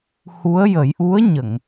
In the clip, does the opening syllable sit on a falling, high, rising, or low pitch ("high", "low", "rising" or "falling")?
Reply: rising